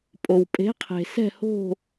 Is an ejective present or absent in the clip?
present